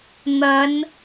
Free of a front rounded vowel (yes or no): yes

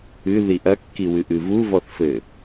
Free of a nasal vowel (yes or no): yes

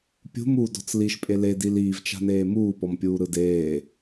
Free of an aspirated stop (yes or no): yes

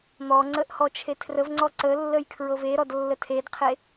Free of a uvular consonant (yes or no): no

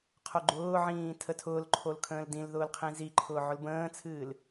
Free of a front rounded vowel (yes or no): yes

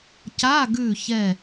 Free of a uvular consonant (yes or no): yes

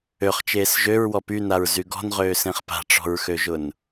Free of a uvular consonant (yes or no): no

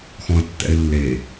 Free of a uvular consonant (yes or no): yes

